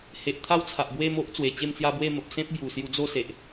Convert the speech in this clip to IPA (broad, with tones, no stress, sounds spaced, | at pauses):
h e˨ ʔ t̪ʰ a˦ w t͡sʰ a˨ ʔ b w e˥˧ m o˦ ʔ t͡s w e˨˩ t͡ɕ e˥˧ m t͡s j a˦ b w e˥˧ m ə˨ p̚ s ẽ˦ p̚ b j u˨˩ s j u˧ d͡z o˥˧ s e˨ ʔ